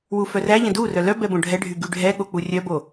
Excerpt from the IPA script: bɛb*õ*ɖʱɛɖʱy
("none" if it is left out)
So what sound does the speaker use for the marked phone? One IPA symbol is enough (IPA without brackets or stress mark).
õ